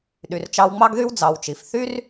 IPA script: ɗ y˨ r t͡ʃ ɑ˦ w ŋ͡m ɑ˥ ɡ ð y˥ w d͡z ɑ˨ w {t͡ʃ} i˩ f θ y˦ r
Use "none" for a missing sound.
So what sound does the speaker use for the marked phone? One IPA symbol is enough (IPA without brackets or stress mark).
t͡ʃ